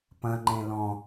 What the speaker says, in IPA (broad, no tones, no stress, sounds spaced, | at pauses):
p ɐ̃ ŋ͡ǃ ẽ l ɔ̃